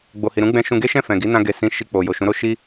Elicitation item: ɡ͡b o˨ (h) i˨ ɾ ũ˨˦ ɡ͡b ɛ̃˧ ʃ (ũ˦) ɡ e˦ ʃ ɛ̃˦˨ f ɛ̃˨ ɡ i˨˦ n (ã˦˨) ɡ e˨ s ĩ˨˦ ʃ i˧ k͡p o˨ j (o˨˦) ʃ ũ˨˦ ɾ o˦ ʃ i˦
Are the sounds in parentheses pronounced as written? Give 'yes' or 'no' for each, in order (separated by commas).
yes, no, no, no